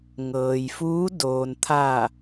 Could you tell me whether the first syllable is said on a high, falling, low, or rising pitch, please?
low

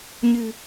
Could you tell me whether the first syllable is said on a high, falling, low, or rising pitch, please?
low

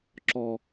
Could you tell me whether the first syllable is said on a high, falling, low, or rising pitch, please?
low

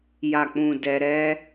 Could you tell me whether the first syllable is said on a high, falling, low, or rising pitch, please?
low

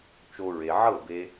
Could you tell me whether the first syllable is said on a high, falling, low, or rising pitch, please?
high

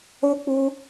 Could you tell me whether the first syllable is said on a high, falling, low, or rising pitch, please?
high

